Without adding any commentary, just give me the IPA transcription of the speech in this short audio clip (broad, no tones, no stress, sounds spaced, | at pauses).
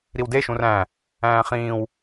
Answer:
ɾ i w d e ʃ ũ r æ̃ | æ̃ː χ ĩː w